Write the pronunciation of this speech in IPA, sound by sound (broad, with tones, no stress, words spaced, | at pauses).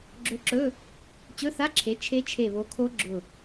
ɡ͡ǁɵ˧˥ǁɵ˧˥˧ | t͡ɕɵ˧˥˧θa˧˥˧ǁʰe˩˥ t͡ʃʰe˧˥t͡ʃʰe˧˩βo˩˥kʰo˧˥ ɡ͡ǁʊ˧˩